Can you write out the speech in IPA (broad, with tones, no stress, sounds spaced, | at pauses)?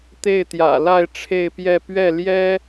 t̪ e˥˩ ɪ̯ t̪ j ä̰˨˩ l a˥˧ ɪ̯ ʈ͡ʂʰ e˥˧ ɪ̯ p j ɛ˥˧ p ɥ ɛ˥˩ l j ɛ˥